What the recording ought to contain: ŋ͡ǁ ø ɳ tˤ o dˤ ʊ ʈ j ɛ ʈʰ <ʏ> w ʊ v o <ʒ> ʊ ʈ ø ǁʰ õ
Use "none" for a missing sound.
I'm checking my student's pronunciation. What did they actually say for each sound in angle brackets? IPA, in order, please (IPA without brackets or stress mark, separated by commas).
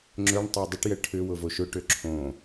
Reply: ʏ, ʃ